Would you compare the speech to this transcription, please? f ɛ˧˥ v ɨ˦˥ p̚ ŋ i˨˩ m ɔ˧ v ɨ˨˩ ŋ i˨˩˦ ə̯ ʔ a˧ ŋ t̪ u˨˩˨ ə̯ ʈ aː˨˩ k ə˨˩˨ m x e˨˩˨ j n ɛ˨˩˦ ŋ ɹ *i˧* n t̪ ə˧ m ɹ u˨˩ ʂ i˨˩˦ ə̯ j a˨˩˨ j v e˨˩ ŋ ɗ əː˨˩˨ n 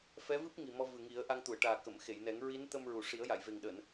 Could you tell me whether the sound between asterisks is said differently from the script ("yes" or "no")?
yes